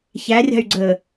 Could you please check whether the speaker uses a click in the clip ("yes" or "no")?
yes